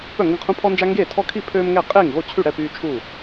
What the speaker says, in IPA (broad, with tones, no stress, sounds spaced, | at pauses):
p œ˥˩ ŋ ɡ ə̃˥˩ qʰ ũ˦ pʰ ɔ˦ n d͡ʒ a˦ ŋ ɡ eː˥˩ tʰ ɔ˦ kʰ i˥˩ pʰ øː˦ m ŋ ɛ˥˩ qʼ eː˥˩ ŋ ɣ o˥˩ t͡ɕʰ y˥˩ ɽ ɛ˥˩ p yː˦ t͡ʃʰ u˥˩